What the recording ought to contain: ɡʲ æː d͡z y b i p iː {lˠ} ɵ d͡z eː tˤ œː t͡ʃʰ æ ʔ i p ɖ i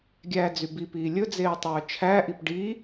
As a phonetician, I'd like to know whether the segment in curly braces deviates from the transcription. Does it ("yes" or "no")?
yes